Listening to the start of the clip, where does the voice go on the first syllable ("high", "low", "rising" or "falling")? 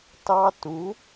high